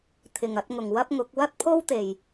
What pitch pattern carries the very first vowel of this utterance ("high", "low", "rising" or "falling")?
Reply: low